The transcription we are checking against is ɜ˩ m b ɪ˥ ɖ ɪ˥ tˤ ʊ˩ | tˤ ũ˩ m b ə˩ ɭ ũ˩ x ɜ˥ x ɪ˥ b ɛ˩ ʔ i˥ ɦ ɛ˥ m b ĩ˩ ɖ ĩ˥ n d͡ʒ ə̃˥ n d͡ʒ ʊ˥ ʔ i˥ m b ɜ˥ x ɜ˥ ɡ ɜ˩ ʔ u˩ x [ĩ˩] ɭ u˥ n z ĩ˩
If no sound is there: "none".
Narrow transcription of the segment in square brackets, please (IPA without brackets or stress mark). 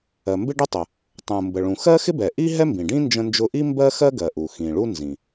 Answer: ĩ˩